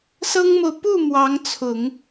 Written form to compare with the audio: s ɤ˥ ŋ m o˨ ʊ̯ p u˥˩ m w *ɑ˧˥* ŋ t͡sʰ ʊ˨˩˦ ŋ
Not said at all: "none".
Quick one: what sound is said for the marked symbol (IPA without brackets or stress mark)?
ɑ˧˥